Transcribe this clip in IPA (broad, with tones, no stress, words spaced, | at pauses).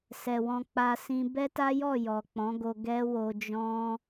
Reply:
sɛ˨wɔ̃˧k͡pa˧ sĩ˧ bɛ˦ta˦jɔ˦˨ jɔ˨k͡pɔ̃˨˦ɡo˧ ɡɛ˦wo˧ d͡ʒɔ̃˦